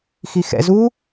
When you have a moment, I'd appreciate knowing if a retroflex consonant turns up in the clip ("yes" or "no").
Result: no